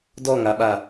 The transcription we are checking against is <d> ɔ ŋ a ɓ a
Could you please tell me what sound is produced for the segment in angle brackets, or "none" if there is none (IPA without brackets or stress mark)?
d